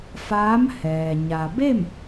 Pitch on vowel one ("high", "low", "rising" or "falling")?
rising